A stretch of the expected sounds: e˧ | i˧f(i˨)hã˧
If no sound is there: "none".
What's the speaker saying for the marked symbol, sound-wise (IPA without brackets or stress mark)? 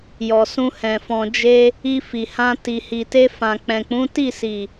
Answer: i˨